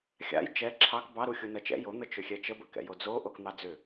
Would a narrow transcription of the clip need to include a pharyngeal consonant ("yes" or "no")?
no